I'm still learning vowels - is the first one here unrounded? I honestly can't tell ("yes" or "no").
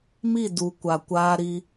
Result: yes